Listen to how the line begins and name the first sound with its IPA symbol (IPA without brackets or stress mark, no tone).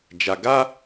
d͡ʒ